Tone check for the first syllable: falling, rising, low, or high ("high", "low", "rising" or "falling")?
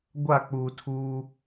falling